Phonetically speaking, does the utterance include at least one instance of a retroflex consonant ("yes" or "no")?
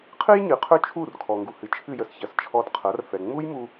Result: no